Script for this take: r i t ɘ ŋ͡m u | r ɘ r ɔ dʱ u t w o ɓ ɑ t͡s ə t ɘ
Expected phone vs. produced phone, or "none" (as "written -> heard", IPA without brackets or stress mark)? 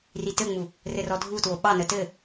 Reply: t͡s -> n